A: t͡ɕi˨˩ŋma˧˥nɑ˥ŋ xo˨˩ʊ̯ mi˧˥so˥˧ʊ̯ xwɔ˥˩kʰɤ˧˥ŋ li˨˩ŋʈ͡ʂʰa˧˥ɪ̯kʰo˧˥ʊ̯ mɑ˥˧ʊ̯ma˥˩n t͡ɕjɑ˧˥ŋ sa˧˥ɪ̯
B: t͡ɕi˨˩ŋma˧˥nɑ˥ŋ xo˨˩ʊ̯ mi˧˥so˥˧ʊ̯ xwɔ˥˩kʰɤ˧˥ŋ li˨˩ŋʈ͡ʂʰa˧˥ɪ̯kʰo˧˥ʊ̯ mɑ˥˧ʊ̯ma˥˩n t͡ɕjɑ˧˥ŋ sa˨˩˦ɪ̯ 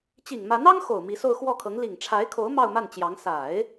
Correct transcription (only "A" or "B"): B